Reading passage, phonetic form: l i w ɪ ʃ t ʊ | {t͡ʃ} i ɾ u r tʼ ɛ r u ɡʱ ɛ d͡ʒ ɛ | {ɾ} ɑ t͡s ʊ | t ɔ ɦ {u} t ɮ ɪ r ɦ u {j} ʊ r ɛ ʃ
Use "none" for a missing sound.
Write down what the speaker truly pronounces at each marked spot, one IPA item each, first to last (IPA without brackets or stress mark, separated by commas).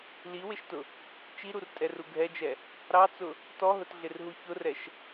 t͡ʃ, ɾ, ʊ, ç